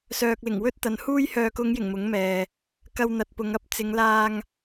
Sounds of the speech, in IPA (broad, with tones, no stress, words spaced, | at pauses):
sœː˨k̚lɪ˨˩ŋwɵ˥t̚ t̪ɐ˨nhuː˥jhœː˧ kʊ˨˧ŋjɪ˨˩ŋ mʊ˨˥ŋmɛː˨ | kɐ˧wn̪ɐ˨t̚ pʊ˨˧ŋɐ˥p̚ t͡sɪ˨˧ŋlaː˧ŋ